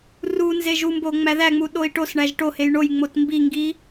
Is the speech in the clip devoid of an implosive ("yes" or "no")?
no